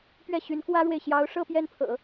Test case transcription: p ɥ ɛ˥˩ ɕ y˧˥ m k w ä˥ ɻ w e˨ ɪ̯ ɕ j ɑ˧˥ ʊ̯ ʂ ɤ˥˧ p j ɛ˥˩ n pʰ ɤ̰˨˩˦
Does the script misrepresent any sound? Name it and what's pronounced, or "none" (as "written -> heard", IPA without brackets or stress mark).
m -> n